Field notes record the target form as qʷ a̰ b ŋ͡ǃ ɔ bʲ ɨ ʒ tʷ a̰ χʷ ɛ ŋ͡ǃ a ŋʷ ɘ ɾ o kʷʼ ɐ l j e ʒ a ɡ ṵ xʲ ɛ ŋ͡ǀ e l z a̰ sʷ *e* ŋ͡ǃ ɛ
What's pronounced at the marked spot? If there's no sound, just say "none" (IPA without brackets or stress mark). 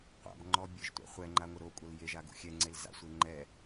e